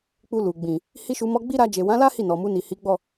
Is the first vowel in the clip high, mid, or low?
high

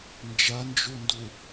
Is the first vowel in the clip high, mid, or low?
low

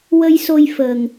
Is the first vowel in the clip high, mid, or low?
mid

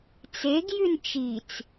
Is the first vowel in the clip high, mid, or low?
mid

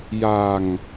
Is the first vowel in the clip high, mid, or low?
low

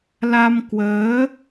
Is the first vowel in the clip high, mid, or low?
low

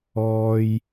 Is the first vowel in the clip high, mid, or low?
mid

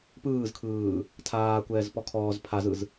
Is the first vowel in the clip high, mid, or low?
high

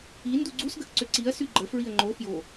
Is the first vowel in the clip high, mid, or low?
high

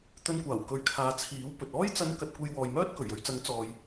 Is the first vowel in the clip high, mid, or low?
mid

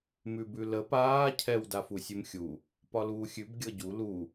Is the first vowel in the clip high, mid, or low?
high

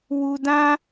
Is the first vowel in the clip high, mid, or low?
high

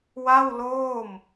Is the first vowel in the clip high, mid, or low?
low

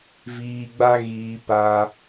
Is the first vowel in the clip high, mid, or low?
high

